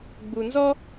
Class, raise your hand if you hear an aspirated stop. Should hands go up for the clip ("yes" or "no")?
no